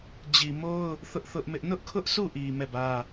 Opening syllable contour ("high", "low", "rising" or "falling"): low